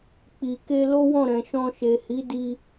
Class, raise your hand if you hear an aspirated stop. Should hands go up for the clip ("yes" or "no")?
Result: no